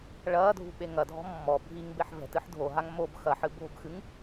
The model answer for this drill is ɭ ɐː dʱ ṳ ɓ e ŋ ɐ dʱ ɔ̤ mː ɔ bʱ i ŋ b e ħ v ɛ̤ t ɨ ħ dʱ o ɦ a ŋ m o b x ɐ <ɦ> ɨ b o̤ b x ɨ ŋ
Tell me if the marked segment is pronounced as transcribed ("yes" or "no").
no